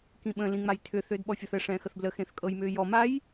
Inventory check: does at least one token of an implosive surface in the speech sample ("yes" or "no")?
yes